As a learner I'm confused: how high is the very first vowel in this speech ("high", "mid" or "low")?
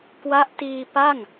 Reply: low